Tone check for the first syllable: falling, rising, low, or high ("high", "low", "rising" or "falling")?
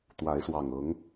rising